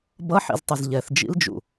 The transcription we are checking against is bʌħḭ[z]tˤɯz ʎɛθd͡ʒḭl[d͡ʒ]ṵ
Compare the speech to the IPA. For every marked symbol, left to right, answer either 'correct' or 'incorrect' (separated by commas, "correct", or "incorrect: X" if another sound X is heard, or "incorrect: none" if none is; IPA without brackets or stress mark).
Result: correct, correct